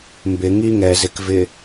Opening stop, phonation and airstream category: plain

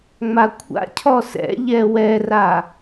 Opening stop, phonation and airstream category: aspirated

